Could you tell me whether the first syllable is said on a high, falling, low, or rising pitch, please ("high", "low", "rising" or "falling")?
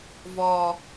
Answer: low